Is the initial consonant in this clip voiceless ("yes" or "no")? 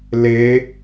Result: no